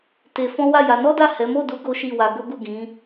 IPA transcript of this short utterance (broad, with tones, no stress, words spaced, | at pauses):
te˧fɔ̃˦ wa˦˨ja˨˦ nɔ˦da˦˨ hɛ˨˦ mo˦˨du˨˦ ɡo˦ʃi˦˨wa˧ ɡo˦ɡu˦˨ɡĩ˨˦